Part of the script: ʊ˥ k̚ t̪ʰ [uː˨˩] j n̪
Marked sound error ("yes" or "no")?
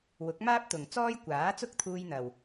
yes